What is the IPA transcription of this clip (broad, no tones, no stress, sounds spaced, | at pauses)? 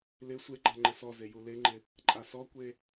l ɪ sʷ e ɡ͡ǃ a ŋ͡ǃ ɪ s ɔ z e j u l e ŋ͡ǃ ɪ | ǃʼ a s ɔ kʷ e